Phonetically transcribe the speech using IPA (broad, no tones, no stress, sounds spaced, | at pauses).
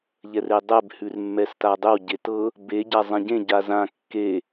ʎ ɛ r e dˤ ɛ b h ʉ r mː ɛ s t a dˤ ʏ w ɟ e t ɤ | b e ɟ a zˤ ɛ̃ ɟ ẽ ɟ a z ã kː e